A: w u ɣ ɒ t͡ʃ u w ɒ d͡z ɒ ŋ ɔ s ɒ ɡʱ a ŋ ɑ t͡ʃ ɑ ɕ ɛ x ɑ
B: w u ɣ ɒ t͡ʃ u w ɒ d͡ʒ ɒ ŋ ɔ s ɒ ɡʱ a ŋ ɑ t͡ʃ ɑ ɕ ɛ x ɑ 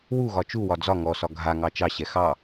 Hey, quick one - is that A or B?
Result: A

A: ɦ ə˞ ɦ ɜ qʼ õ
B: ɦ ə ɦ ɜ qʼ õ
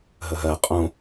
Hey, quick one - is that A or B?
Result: B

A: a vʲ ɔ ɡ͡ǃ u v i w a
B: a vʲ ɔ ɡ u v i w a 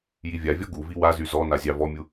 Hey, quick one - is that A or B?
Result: B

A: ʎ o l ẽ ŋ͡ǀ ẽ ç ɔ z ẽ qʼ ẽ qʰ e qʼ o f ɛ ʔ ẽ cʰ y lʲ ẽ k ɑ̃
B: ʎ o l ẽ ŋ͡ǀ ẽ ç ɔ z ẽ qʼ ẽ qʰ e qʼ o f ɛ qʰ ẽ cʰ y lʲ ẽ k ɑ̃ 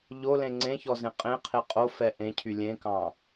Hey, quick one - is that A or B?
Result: A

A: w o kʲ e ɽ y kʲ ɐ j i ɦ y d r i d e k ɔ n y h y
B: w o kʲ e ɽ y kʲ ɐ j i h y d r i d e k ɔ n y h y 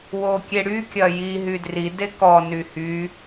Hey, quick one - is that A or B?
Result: A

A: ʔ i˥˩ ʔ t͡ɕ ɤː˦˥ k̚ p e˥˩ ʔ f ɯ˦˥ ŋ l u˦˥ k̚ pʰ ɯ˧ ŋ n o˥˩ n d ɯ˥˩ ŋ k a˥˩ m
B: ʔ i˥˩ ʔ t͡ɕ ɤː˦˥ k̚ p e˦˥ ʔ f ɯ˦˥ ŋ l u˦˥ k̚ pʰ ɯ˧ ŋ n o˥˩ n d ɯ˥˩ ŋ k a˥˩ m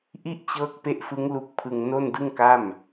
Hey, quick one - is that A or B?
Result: B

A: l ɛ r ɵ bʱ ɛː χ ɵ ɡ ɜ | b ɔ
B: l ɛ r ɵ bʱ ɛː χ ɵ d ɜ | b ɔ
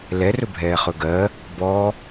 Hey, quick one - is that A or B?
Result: A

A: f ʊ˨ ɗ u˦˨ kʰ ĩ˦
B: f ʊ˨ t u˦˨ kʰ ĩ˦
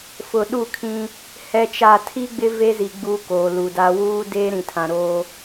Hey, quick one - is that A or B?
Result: A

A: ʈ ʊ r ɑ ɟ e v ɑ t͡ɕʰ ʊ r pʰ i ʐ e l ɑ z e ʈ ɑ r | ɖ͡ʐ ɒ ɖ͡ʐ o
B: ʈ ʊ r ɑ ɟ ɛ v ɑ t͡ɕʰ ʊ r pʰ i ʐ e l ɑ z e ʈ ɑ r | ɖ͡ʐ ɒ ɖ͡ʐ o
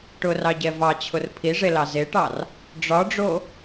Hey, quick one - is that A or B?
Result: B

